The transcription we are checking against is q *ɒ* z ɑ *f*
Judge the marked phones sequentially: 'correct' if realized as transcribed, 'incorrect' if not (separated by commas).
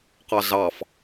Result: incorrect, correct